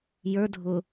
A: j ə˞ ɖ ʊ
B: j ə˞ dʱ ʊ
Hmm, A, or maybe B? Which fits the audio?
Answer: B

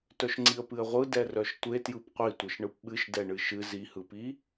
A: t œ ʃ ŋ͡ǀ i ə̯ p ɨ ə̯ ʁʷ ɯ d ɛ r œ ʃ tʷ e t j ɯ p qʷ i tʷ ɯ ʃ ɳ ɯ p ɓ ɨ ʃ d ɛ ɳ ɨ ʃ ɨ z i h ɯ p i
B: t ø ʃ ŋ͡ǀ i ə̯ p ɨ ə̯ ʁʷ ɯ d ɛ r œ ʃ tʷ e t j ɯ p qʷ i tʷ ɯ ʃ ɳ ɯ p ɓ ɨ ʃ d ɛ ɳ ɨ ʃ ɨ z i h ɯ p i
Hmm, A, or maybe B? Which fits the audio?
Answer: A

